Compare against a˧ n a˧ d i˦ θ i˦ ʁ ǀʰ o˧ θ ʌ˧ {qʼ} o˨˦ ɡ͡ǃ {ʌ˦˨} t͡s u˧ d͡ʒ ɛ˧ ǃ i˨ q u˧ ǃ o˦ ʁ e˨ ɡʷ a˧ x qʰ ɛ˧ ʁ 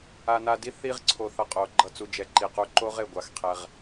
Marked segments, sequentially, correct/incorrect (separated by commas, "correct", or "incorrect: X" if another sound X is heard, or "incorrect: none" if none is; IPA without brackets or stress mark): correct, incorrect: ʌ˧